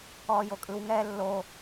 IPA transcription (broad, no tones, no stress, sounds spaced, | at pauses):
ɔː j o kʼ ɯ w ŋ ɛː lː o